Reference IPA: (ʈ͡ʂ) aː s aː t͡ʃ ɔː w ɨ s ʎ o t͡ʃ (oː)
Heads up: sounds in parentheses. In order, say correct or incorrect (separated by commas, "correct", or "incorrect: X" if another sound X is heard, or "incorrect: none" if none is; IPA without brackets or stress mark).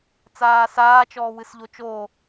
incorrect: t͡s, correct